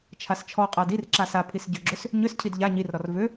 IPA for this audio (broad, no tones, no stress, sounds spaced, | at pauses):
t͡ʃʰ a s t͡ʃʰ ɔ qʼ a d i r ǁ a s a pʰ i s ɟ ʏ ɡ͡ǁ ʏ s | ɲ ʏ s cʰ i d ʎ a ɲ i r ɾ ɔ r v ʏ